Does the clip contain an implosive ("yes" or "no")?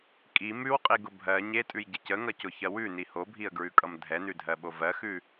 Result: yes